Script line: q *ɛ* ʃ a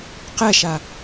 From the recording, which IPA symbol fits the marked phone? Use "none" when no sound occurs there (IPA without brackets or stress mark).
ɛ